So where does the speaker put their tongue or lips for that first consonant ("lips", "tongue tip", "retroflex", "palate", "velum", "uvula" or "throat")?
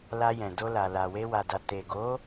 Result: tongue tip